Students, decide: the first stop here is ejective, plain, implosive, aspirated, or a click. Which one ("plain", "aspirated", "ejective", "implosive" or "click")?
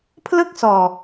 aspirated